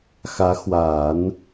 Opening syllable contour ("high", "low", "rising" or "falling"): rising